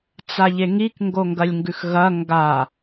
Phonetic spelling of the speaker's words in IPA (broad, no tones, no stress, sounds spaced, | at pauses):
t͡s a ʎ e ŋ i k ŋ ɡ o ŋ ɡ ɐ lʲ ŋ ɡ ʉ x ɣ ɐ ŋ ɡ a